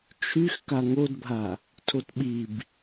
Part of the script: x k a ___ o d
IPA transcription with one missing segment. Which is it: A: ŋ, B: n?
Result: A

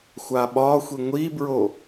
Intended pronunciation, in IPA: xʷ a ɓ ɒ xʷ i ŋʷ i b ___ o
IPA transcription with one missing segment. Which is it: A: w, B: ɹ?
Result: B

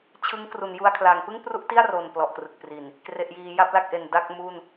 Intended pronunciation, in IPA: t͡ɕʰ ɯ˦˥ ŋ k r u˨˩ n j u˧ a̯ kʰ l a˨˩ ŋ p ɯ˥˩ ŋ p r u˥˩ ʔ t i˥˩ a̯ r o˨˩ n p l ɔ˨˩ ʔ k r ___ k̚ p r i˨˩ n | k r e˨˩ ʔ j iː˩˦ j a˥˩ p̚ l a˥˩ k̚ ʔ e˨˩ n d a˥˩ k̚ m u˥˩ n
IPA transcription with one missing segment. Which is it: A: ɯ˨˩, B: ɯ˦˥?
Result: A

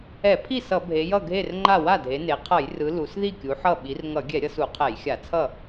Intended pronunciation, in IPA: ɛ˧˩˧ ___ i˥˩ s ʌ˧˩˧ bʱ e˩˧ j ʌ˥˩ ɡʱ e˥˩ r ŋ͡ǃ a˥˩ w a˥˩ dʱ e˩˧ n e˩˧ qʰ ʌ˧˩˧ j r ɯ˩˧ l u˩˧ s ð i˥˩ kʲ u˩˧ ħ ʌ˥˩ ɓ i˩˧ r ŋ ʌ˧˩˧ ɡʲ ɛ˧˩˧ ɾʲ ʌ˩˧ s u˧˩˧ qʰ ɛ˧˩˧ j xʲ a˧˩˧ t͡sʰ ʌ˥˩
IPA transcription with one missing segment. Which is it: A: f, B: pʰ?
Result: B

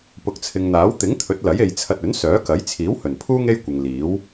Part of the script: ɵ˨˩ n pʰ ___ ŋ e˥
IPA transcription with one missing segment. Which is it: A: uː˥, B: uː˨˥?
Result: A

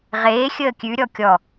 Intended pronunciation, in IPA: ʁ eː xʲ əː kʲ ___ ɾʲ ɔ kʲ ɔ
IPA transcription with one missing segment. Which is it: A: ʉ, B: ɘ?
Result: A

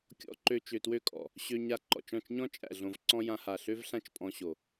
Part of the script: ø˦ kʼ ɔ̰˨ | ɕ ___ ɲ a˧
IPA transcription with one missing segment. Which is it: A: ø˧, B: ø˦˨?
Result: A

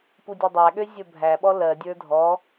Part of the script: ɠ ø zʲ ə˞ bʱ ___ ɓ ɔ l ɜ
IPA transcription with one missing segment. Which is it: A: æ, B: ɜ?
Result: A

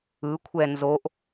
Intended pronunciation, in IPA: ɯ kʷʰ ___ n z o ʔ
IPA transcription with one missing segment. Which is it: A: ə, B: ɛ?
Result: B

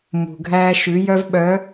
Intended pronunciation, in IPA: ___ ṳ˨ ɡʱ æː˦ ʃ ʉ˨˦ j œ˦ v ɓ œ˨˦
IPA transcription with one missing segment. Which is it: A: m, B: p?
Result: A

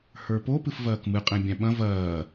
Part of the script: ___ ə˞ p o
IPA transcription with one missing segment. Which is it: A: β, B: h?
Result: B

